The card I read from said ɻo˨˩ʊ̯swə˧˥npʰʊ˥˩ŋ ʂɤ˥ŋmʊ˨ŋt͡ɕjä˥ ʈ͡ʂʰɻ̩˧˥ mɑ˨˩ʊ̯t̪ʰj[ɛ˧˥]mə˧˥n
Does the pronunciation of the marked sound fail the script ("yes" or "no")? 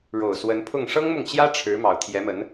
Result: no